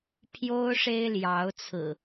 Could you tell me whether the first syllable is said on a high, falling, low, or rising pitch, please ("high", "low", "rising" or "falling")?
high